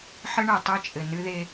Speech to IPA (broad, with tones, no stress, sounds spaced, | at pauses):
ħ ɘ˦ ɳ ɛ˨ tˤ e˦ t͡ʃʼ ɘ˨ n ɨ˦ ð e˦